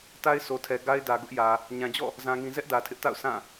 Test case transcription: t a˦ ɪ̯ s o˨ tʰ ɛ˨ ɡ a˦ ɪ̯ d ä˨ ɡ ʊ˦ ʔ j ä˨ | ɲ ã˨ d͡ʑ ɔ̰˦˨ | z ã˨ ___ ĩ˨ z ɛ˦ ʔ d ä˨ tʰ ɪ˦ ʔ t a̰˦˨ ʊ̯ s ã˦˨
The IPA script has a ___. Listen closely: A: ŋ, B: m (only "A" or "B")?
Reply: A